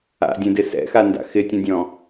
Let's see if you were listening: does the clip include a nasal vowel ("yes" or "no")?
yes